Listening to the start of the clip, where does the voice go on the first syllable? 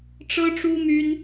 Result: high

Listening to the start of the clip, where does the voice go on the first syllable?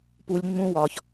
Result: low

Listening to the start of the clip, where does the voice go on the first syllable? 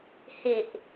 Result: low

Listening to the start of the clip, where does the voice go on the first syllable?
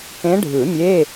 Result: rising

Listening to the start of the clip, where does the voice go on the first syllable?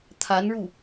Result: rising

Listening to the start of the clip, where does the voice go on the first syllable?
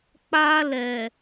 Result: high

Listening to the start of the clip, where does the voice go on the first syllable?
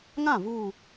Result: falling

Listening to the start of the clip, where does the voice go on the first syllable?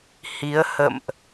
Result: rising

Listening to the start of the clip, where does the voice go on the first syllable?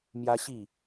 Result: high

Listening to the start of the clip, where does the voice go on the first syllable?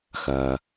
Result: low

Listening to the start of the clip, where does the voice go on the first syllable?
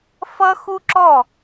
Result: high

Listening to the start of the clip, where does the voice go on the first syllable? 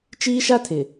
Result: high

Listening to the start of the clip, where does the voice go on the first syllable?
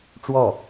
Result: falling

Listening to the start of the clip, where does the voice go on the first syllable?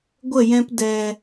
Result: falling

